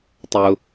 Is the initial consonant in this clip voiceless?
yes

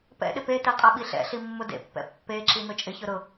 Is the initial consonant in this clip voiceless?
yes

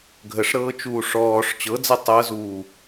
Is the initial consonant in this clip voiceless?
no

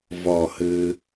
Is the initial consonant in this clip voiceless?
no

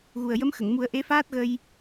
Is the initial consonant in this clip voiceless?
no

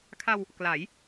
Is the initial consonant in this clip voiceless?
yes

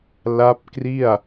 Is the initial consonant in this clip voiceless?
no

